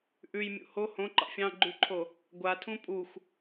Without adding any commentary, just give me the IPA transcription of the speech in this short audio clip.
ʔ ʉ j mʲ ṵ h o h õ ǃ ɑ̰ fʲ ɑ̃ ɡ͡ǃ ʉ ǃʰ o | ɡʷ a tʰ ũ pʼ u xʷ

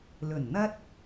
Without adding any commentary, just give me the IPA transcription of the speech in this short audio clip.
l ɵ˨˩ n n̪ ɐ˥ t̚

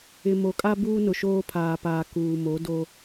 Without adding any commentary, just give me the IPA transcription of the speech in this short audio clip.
ɪ˨ m o˨ kʼ a˦ b uː˦ n ʊ˨ ʃ oː˦ pʰ aː˨ p aː˨ k uː˨ m o˨˦ d o˦

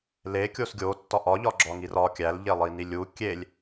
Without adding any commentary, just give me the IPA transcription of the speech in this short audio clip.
l e kʲ o s ɡʲ o tː ɒ ʔ ɒ ʎ ɒ ɡ͡ǁ ɒ ŋ i r ɒ kʲ æ l ʎ e lˠ i n i lʲ u kʲ e lʲ

